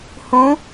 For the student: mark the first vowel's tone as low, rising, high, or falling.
rising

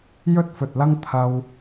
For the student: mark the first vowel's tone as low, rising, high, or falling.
high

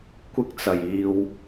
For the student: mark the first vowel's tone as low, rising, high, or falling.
high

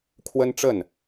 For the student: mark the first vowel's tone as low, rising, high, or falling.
high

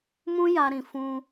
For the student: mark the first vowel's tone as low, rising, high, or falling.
high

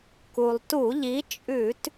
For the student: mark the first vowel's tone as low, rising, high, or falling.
low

